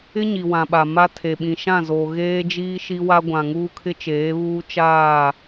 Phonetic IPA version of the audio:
ɪ˦ ɲ i˨ w ã˨ ɓ a˨ m a˦ tʰ e˨ ɓ ĩ˨ ʃ ã˦˨ z oː˨ ɣ eː˦ d͡ʒ iː˦ ʃ i˦ w a˦ ɡʷ ã˨ ŋ uː˦ kʰ ɪ˦ t͡ʃ eː˨˦ β uː˦ t͡ʃ aː˦˨

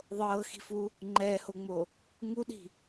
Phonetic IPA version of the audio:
ðˤ ɤː x i̤ f u | ŋ͡ǃ ɛː h o ŋ͡m o | ŋ u ɗ i̤

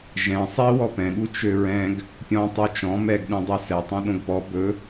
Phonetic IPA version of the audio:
ʒ ɛ̃ sˤ i w ɔ p ɛ̃ ɠ u t͡ʃ ø ɹ ɛ̃ ɡ | pʲ ɔ̃ tˤ u t͡ʃ ɔ̃ m ɛ ɡ ɗ ũ dˤ ɛ s ɛ tˤ õ ɗ õ ɡ p ɔ b ɵ

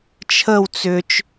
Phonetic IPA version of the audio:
t͡ʃʰ ə w t͡s ʏ t͡ʃ

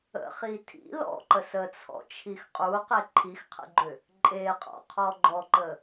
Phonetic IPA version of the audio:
ə̰ χ i tʰ ḭ l ɔ̰ ǃ ə s ə t͡sʰ ɔ̰ t͡ʃʰ i x qʼ u q e ǃʰ i x qʰ ə̰ ɡ͡ǃ ʏ | ǃʼ e qʼ ɔ̰ qʰ ɔ ɡ͡ǃ ɔ ǃ ə

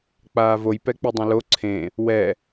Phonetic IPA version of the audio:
k͡p aː v o j p ɛ k͡p i dˤ ɐ̃ l o ǀʰ ẽ | w ɛ

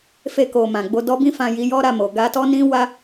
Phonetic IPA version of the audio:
f e˧ k o˨ m ã˨ ɡ͡b o˧ d ɔ˦ b ĩ˦ f ã˧ j i˧ j ɔ˦ ɾ a˦˨ m o˨ ɡ a˧ t ɔ˦ n ĩ˦ w a˦

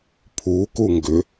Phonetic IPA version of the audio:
pʰ u k u ŋ ɡ ʏ

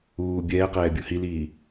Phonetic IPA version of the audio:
uː bʲ ɛː q ɛː bʲ u h i l iː

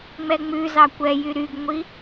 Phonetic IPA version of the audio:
ŋ͡m ɛ ŋ͡m ʉ z ɑ kʷ ɛ j y ɾ y ɡ ŋʷ i

